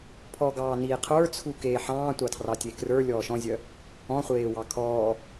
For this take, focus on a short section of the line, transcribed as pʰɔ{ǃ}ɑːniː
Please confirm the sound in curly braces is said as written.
no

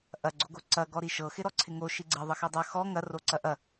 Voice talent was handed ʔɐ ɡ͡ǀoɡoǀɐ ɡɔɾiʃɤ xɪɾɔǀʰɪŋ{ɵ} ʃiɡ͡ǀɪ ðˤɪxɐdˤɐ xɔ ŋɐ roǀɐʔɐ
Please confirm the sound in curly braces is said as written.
no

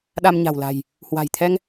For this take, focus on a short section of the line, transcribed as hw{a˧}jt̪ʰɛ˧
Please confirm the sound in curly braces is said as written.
no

